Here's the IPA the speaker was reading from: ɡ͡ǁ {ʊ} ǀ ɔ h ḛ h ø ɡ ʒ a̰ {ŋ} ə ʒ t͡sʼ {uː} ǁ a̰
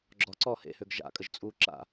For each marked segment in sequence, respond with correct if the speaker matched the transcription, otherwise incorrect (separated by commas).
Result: incorrect, incorrect, correct